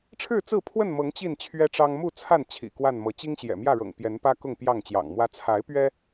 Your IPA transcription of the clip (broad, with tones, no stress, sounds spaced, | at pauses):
ʈ͡ʂʰ ɻ̩˥˨ t͡s ɹ̩˥˨ pʰ w ə˥˨ n m ɤ˨˦ ŋ t͡ɕ i˥˨ n t͡ɕʰ ɥ ɛ˦ ʈ͡ʂ ɑ˦ ŋ m u˥˨ t͡sʰ a˥˨ n t͡ɕʰ ḭ˨˩ k w a˥˨ n m ɤ˨˦ t͡ɕ i˦ ŋ ɕ j ɛ̰˨˩ m j ä˥˨ ɻ ɤ̰˨˩ ŋ p j ɛ˨˦ n p ä˦ k ʊ˥˨ ŋ p j ɑ˥˨ ŋ t͡ɕ j ɑ̰˨˩ ŋ m w ä˦ t͡sʰ a˨˦ ɪ̯ p ɥ ɛ˦